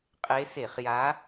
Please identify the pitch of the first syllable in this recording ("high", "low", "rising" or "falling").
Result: rising